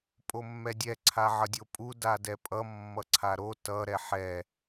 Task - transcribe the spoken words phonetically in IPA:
pʼomːɛdʲɛ ǀʰaʕʌdʲopʼu dadɛpʼʌ mːʌǀʰaɾo tʌ ɾɛħɛ

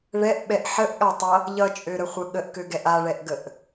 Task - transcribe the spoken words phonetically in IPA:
ɭɛʔɓɛʔ ħəʔɠatˤʌ | ʎʌt͡ʃʼøɾəχʷə ɠəʔkøɡɛʔ aɭɛʔɡəʔ

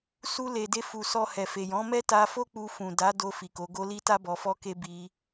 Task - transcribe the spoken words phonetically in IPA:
su˧le˨ de˧fu˨sɔ˧ hɛ˨fe˨jɔ̃˨˦mɛ˦ ta˧fo˦ k͡pu˧ fũ˨da˨˦do˧fi˨ ko˨˦ɡo˦ li˦ta˦ bɔ˧fɔ˦ke˦ bi˧

